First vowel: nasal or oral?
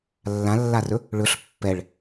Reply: nasal